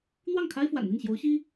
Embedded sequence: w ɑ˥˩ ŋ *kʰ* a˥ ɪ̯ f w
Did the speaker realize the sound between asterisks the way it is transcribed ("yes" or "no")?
yes